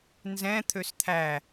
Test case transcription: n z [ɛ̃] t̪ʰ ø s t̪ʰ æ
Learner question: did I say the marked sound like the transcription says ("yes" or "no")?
yes